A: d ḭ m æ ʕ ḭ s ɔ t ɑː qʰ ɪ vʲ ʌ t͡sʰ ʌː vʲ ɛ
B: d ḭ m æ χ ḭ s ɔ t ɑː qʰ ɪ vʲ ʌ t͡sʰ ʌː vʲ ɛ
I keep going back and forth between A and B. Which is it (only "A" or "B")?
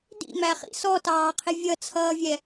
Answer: B